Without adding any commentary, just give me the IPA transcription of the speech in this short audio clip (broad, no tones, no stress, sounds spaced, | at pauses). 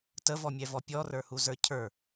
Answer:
t ə v ɔ mʲ ɛ v ɔ pʲ ɔ r ə˞ h u z ə˞ cʰ ə˞